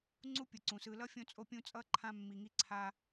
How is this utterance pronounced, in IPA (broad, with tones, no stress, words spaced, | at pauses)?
ŋ͡ǀu˦pʲɯ˩ǀũ˩sɯ˨ lʌ˥fʲõ˦t͡sʼo˦ pʲũ˦t͡sʼʌ˥ ǃʰã˦ mːi˨ŋi˦ǀʰa˦